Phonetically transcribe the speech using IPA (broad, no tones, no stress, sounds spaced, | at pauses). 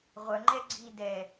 ʁʷ œ ŋ͡ǃ ɛ ɡ͡ǀ i d ɛ